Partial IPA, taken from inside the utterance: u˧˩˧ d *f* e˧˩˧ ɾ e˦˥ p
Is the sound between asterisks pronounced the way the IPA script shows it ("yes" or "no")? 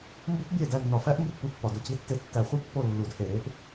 no